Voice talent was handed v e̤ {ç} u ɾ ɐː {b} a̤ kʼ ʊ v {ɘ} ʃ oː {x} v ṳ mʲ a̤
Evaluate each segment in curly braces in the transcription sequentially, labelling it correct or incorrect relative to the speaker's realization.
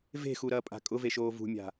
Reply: incorrect, incorrect, incorrect, incorrect

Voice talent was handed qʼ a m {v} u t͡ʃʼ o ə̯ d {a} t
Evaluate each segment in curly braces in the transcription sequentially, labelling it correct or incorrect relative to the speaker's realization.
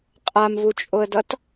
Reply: correct, incorrect

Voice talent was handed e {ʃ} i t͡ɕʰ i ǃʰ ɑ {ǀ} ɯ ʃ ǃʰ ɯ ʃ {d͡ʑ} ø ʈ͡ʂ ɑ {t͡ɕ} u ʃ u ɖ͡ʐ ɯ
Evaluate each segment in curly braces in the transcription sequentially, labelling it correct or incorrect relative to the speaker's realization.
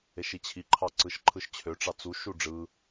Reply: correct, correct, incorrect, incorrect

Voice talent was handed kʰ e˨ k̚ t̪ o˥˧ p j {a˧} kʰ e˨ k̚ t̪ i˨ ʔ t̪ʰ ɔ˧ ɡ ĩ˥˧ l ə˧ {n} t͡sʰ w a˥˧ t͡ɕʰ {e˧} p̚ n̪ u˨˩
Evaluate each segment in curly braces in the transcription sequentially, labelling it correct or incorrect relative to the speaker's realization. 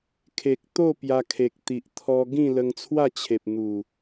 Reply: correct, incorrect, incorrect

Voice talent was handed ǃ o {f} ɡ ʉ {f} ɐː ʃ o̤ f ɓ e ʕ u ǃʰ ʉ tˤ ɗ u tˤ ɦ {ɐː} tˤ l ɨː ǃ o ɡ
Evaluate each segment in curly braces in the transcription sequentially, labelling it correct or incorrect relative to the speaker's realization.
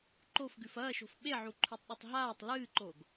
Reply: correct, correct, incorrect

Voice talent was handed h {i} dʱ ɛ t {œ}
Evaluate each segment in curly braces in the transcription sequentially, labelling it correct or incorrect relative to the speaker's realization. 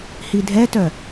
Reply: correct, correct

